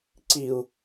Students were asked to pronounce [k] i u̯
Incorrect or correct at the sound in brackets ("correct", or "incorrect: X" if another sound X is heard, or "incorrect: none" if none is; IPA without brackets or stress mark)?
incorrect: ǀ